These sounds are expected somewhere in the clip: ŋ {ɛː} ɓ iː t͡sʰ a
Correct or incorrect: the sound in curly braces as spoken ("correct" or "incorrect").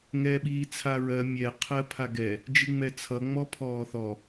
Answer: correct